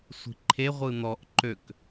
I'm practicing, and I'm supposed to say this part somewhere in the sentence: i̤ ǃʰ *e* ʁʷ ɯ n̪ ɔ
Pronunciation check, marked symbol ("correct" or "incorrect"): correct